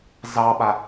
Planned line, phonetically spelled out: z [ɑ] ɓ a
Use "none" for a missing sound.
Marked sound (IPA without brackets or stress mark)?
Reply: ɑ